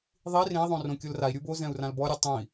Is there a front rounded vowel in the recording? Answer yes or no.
no